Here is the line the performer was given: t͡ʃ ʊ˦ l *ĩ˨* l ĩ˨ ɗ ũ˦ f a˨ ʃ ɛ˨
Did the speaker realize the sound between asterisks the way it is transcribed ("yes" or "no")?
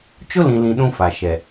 yes